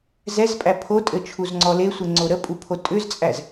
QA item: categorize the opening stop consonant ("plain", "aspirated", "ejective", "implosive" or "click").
ejective